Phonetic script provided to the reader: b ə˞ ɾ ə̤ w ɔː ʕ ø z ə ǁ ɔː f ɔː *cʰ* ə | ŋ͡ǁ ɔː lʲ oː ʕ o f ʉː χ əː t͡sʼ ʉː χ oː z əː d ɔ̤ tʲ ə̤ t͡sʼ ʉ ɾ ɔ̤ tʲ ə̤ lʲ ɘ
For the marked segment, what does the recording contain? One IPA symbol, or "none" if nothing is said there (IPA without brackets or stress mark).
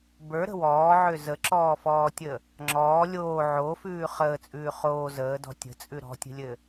tʲ